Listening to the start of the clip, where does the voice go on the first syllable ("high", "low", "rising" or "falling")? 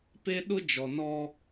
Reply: high